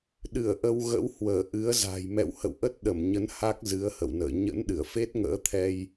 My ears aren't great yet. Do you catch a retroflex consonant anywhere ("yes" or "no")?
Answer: no